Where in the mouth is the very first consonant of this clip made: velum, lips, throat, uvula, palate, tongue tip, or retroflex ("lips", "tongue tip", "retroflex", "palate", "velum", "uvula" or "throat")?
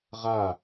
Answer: uvula